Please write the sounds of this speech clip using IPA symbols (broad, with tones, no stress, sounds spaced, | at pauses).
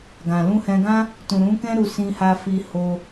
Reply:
ɡ ã˨ l ũ˧ h ɛ̃˧ ɡ ã˦ | t ũ˨ ɾ ũ˨˦ k ɛ̃˦ ɾ u˧ s ĩ˧ h a˧ f i˧ h o˧